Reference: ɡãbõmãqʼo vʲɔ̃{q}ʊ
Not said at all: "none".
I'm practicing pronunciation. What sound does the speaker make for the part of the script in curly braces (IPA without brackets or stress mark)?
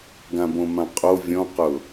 q